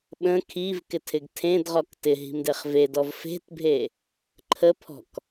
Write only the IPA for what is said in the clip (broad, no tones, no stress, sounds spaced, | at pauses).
ɓ ə̃ kʰ i v k ɪ tʰ ɪ ɡ tʰ ẽ d ʁ ɔ k t ɪ ɦ i̤ m d e χ v e d ɔ v f e̤ t bʱ e | ǃʰ ə pʰ ɔ̤ k